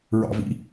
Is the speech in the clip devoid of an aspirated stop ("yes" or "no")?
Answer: yes